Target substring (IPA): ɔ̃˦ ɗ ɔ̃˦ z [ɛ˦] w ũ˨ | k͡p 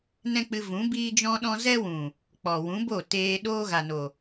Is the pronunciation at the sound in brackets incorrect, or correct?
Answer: correct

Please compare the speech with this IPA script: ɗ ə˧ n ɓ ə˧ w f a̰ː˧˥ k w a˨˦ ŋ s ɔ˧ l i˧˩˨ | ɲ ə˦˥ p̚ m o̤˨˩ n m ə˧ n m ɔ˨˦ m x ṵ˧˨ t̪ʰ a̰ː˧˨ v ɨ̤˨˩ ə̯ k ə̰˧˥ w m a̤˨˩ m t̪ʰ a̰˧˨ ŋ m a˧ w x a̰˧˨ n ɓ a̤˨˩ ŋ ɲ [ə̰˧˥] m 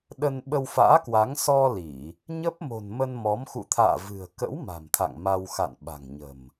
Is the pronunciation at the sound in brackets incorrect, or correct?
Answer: incorrect: ə̤˨˩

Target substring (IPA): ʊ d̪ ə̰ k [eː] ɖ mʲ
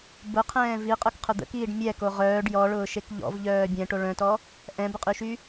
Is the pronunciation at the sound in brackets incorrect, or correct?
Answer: incorrect: iː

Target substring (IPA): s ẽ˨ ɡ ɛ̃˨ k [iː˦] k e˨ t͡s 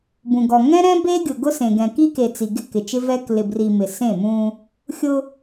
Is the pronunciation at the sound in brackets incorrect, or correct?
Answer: incorrect: i˦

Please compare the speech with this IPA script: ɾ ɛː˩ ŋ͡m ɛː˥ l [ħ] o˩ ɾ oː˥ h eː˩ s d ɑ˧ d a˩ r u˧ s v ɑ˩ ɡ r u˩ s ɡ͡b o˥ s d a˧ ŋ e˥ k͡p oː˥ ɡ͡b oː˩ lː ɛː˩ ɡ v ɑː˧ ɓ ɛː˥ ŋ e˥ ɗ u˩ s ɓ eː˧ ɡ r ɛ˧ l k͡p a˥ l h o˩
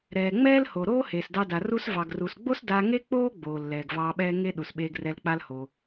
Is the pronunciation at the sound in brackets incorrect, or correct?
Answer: incorrect: h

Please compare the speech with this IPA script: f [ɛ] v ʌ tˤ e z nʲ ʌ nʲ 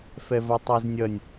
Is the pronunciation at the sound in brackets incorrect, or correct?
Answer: correct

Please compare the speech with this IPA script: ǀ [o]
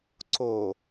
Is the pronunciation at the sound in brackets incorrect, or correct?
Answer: correct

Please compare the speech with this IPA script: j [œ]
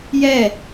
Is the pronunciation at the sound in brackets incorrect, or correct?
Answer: incorrect: ɛ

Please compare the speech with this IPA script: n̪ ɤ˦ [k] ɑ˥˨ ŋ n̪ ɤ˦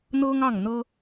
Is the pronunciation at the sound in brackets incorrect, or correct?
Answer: incorrect: ŋ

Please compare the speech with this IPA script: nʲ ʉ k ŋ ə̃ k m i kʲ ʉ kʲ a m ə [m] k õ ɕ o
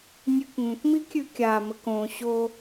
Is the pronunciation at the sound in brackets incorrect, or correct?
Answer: incorrect: none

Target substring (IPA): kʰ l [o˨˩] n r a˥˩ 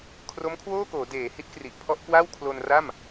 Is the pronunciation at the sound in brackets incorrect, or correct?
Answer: incorrect: o˧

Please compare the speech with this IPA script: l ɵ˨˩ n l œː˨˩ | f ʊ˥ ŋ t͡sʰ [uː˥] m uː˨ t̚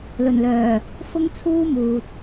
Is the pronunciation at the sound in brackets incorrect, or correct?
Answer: correct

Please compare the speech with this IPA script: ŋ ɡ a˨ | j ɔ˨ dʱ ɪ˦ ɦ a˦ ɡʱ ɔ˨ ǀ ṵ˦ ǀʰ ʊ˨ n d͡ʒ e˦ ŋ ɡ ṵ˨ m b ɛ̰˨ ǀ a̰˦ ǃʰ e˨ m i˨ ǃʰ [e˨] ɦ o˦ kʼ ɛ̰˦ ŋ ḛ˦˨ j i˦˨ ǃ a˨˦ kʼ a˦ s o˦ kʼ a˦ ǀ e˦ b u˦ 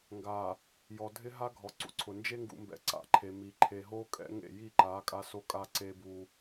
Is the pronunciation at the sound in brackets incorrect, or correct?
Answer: correct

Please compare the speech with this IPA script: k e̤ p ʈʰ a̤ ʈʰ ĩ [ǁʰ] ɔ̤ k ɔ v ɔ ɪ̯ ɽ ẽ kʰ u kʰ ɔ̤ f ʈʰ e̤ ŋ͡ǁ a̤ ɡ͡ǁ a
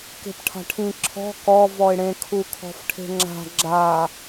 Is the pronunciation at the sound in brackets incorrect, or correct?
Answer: correct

